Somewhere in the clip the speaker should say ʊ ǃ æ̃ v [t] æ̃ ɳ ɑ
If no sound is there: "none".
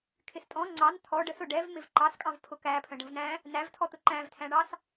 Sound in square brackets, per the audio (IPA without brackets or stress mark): tʰ